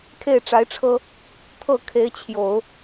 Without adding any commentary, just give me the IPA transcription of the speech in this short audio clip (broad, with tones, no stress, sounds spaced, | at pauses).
kʰ e˥˩ ɪ̯ ʈ͡ʂ a˧˥ ɪ̯ ʈ͡ʂʰ ɤ˥ | t̪ʰ ɤ˥˩ kʰ e˧˥ ɪ̯ t͡ɕʰ j o˨˩˦ ʊ̯